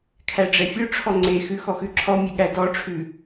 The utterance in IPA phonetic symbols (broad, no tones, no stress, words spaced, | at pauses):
kʰæɖ͡ʐɛfʲɵʈ͡ʂʰɔ ŋ͡ǀexʉ xɔxʉǁʰɔmʲe ɠædɔʈ͡ʂʰʉ